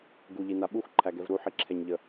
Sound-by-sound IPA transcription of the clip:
ɡ u ʎ i n a ɓ u x ǃʰ æ ɡ ɛ v ɾ u ħ i ǁʰ ɛ ɲ ʎ ə

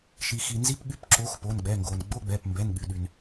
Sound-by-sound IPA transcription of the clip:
ʃ i˩ x i˩ n z i˧˥˧ p ɠ y˧˥˧ p ǁ o˨˥ x p o˩˧˩ n ɡ͡b ɛ˩˧˩ ŋ ɡ o˩ n ɡ͡b o˧˥˧ ɡ͡b ɛ˩˧˩ p m b ɛ˩˧˩ n ɠ y˩ ɗ y˩ n

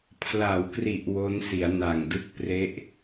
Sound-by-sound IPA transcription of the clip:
pʰ l a˩˦ w k r i˨˩ ʔ w o˦˥ n s i˩˦ a̯ n a˨˩ ŋ d ɯ˦˥ k̚ p r e˦˥ ʔ

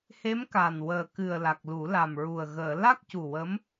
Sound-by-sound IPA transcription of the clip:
h e˧˥ m k a˨˩ n w əː˨˩ k ɨ˨˩ ə̯ l a˨˩ k̚ l u˨˩˦ l a˨˩ m ɹ u˨˩ ə̯ ɣ əː˨˩˨ l a˦˥ k̚ c u˨˩ w ə˧˥ m

